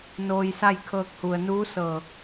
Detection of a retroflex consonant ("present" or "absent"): absent